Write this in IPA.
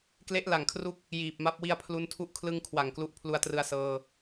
k l e˦˥ ʔ l a˨˩ ŋ kʰ r u˦˥ k̚ | j iː˨˩ p̚ m a˦˥ p̚ w i˧ a̯ pʰ l u˧ n tʰ u˥˩ ʔ kʰ l ɯ˧ ŋ kʰ w a˨˩ ŋ k l u˦˥ ʔ pʰ l u˧ a̯ t r ɯ˧ a̯ s ɤː˧

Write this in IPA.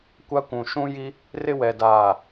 kʷ a˦ kʷ ũ˨ ʃ ũ˦ j i˦ | r ɪ˦ w ɛ˨ d aː˨

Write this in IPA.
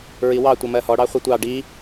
ɹ i w ɑ tʷ ʌ m ɜ h ɔ ɽ ɑ χʷ ʌ tʷ ɑ ɖ i

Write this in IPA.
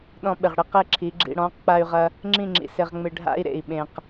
ɗ ɔ̃˧ ɓ ɪ˨ ʁ ɽ ɪ˦ q e˦ ǁʰ i˨˦ ɡ͡ǁ ḭ˧ ɽ ɔ̃˨˦ q k͡p a˧ y̯ ʁ ɐ˧ | ŋ͡ǁ ĩ˦˨ ŋ͡ǁ ḭ˨ s ɪ˧ ʁ ŋ͡m ɪ˧ ɖʱ a̰˦ i̯ ɾ ḛ˨ i̯ ɓ ẽ˨ q

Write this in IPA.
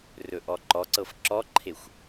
r ɵ ʔ ɔ ǃ ɔ ǀ ɤ f ǁ ɔ ǃʰ e xʷ

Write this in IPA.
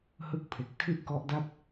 h ɯ˥˩ k̚ pʰ e˨˩ k̚ tʰ i˥˩ ʔ k ɔ˦˥ ʔ d a˥˩ p̚

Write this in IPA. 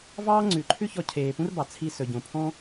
v ɑː˥ ŋ͡ǀ ʉ˩ ǃʰ ʉ˥ ç ɔ˧ cʰ eː˩ p ũ˥ r b ɑ˩ t͡sʰ i˧ s ɵ˩ ɟ õ˩ pʰ ɔ̃˥

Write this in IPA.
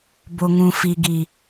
b o˨ ŋ ũ˨ f i˨ ɡ i˨

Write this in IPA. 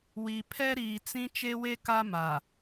w i˨ pʰ ɛ˦ ɾ iː˨ t͡s ĩ˦ t͡ʃ e˦ w e˦ k a˦ m a˨

